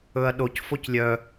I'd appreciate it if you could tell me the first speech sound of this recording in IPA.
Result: ɵ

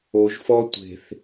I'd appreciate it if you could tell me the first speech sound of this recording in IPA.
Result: o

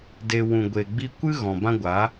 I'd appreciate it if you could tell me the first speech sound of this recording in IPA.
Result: d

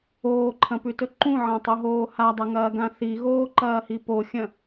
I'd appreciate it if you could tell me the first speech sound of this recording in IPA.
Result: oː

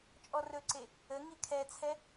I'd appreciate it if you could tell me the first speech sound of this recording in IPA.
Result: t͡ʃʼ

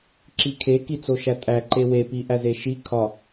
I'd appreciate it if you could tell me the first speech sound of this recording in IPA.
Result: ǁ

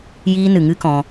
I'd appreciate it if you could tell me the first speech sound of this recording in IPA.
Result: j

